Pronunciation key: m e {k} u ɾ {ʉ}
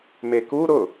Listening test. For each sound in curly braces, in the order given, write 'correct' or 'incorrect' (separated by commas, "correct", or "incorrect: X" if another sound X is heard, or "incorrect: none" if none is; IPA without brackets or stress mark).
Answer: correct, incorrect: ʊ